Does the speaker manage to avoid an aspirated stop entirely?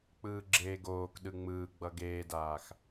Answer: yes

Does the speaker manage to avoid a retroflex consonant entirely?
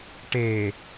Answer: no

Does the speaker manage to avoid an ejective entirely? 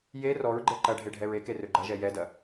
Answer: yes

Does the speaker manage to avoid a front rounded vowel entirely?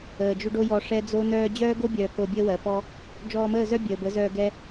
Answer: no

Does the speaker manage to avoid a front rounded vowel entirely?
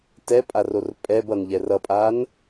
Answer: yes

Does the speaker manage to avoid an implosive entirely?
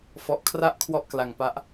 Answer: yes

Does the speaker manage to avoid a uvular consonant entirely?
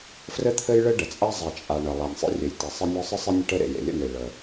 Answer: yes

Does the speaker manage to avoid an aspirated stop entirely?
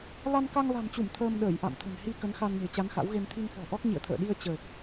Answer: no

